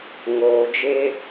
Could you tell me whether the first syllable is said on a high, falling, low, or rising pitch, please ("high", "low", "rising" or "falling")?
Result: low